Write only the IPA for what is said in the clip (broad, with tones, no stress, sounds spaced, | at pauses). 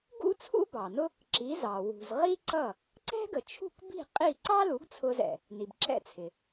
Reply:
ɡ ṵ˥ t͡sʰ ṵ˥ b ɑ˩ n ʊ˥ | ǁ i˩˥ z ɑ˩ w ṳ˩ z ʁ i˥ ǀ ʌ˥˩ | ǀ ɛ̤˥ ɡ ə˩ t͡ʃʰ ṳ˥˩ k b i̤˥˩ qʼ i˥˩ ǀ ɑ˥ l u˩˥ ɡ t͡sʰ ʊ˧ z ɛ̰˩ | n i˩ b ǁ ɛ̰˥˩ t͡sʰ ɪ˩